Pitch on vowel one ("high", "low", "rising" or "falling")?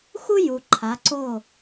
high